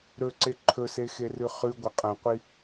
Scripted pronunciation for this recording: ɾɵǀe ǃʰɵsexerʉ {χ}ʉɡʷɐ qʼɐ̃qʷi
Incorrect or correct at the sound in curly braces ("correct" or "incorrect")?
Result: correct